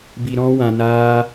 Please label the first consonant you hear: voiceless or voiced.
voiced